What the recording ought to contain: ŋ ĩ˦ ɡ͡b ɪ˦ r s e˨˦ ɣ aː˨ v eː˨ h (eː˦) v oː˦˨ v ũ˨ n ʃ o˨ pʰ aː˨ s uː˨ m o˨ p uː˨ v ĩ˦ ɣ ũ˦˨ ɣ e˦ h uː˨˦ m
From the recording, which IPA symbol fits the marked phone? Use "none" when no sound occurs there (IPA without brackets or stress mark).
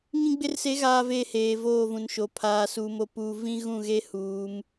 eː˨